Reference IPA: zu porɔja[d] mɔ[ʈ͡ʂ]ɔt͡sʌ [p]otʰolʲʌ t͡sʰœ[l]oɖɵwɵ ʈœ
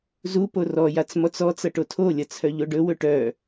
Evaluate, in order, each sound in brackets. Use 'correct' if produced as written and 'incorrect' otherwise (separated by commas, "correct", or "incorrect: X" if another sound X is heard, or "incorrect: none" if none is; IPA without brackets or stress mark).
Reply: incorrect: t͡s, incorrect: t͡s, incorrect: ʈ, incorrect: ʎ